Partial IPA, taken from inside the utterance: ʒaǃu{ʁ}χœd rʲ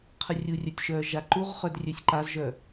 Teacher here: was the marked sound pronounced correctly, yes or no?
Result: yes